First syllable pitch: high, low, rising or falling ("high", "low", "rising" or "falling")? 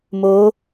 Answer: rising